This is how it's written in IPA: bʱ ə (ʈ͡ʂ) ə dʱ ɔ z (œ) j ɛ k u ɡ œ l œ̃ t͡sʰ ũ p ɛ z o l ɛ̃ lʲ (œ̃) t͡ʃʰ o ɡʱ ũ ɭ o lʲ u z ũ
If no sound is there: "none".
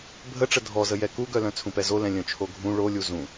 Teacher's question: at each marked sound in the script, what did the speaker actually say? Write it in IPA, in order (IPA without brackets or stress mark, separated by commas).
ʈ͡ʂ, ə, œ̃